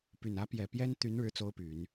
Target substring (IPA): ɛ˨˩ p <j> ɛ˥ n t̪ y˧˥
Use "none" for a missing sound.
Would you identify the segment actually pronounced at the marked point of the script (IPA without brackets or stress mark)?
j